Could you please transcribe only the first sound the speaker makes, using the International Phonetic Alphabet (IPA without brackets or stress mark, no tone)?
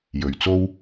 j